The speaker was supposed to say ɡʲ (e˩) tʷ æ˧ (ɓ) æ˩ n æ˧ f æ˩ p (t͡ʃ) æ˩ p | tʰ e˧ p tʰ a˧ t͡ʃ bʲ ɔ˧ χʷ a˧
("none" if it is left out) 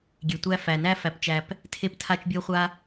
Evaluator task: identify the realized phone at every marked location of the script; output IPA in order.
e˩, f, t͡ʃ

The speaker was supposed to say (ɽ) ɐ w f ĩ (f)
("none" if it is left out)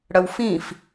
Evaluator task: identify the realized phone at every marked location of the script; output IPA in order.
ɽ, f

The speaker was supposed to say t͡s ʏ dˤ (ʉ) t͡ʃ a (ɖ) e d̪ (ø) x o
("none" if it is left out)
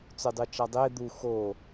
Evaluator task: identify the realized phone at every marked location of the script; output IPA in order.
ʉ, dˤ, u

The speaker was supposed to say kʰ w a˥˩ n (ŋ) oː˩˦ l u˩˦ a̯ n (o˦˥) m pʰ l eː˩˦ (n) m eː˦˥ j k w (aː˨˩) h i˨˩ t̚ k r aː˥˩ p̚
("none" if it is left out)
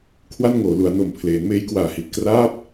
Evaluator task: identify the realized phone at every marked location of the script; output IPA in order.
ŋ, o˨˩, n, aː˨˩

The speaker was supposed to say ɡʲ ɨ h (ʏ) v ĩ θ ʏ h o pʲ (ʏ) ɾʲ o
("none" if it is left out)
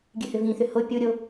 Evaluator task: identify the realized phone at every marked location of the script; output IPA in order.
ʏ, u

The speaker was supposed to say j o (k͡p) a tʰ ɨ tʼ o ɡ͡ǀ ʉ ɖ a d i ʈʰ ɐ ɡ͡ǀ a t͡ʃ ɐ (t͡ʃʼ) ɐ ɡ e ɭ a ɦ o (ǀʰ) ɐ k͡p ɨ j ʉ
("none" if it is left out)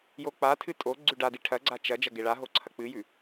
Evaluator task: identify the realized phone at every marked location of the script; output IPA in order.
k͡p, d͡ʒ, ǀʰ

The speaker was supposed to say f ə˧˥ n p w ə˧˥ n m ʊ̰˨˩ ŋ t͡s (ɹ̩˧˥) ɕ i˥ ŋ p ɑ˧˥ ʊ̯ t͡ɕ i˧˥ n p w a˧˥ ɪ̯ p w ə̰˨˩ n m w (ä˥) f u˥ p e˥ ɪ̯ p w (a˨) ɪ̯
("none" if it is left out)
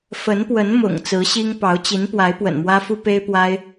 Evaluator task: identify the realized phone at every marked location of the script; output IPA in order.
ɹ̩˧˥, ä˥, a˥

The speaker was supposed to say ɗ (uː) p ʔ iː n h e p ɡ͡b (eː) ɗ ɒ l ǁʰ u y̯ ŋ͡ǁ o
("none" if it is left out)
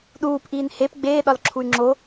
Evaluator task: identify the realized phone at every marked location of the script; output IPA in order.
uː, eː

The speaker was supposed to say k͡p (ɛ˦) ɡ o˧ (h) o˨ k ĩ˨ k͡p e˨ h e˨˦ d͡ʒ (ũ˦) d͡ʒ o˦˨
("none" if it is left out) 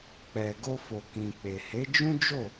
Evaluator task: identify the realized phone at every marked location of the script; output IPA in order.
ɛ˨, f, ũ˦

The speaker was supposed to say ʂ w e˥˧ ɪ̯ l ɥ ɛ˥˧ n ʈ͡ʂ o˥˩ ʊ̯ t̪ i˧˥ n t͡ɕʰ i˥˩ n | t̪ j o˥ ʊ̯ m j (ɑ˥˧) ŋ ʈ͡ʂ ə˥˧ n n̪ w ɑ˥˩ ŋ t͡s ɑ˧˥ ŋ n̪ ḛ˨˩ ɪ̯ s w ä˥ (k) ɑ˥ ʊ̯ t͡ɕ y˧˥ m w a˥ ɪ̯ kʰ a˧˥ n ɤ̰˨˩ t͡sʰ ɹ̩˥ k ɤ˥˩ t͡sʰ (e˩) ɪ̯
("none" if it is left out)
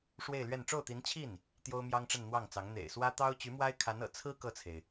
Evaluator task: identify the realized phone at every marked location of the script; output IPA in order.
ɑ˥, t̪, e˩

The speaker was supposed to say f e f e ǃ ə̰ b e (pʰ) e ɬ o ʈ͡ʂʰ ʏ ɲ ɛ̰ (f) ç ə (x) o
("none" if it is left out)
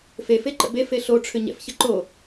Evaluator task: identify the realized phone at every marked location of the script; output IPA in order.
f, f, ǃ

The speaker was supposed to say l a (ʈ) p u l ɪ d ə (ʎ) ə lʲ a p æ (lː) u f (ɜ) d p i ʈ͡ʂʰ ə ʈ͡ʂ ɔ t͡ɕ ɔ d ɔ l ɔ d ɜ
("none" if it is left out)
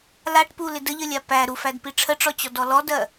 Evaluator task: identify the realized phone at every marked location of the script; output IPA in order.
ʈ, ʎ, ɾ, æ

